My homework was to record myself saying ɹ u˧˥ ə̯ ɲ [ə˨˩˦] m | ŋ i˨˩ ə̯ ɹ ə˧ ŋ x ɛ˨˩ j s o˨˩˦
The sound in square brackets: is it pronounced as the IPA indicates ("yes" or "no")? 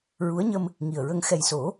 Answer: no